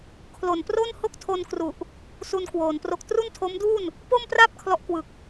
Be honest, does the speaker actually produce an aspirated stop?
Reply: yes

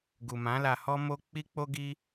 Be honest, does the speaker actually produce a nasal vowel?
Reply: yes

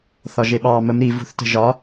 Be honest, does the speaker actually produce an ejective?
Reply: no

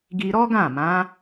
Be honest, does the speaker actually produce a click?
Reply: no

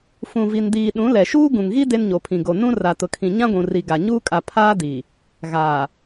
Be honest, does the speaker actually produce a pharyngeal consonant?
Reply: no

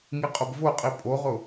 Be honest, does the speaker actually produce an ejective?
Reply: yes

